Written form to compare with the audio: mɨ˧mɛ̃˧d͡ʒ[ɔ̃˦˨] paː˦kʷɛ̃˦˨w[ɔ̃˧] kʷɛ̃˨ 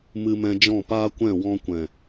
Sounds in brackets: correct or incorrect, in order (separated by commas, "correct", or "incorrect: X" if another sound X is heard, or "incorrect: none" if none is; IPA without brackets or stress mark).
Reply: correct, correct